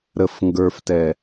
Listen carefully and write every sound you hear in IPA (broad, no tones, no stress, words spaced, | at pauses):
ɾəf ŋɡə˞ftɛ